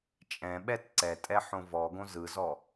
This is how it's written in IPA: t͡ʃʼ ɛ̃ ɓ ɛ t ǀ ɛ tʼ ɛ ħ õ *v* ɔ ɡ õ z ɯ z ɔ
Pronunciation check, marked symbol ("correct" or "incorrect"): correct